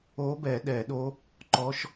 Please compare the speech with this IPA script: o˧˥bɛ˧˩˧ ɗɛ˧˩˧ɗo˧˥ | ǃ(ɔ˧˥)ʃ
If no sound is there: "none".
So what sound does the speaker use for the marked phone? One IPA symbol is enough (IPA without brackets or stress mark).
ɔ˧˥